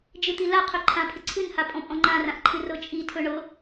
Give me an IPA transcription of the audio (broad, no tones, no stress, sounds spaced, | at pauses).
d͡ʒ ɨ t̪ i l a qʰ ɵ ǃʰ ã pʰ ɪ ǀʰ ɨ n h a pʼ ɔ̃ pʼ ɔ̃ ŋ͡ǃ ã r ã ʔ ǃʰ ɨ r ɤ t͡ʃʼ i tʰ ɵ ɳ ɤ